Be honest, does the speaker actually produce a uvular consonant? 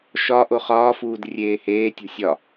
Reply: yes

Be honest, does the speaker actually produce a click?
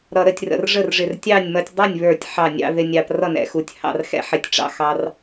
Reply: no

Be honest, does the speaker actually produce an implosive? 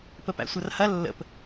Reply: no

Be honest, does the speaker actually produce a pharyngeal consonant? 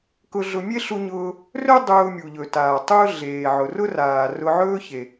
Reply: yes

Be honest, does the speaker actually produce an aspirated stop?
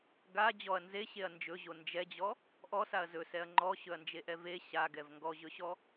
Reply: no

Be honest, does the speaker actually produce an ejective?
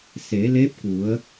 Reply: no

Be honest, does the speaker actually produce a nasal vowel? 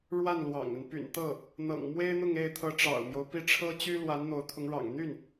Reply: no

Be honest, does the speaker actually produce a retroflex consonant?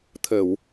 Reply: no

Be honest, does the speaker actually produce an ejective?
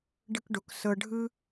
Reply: no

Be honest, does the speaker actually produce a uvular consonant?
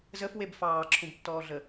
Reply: no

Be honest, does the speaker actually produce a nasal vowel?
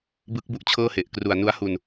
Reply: no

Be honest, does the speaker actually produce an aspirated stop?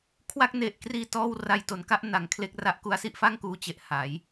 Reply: yes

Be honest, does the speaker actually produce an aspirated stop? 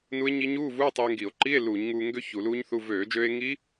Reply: no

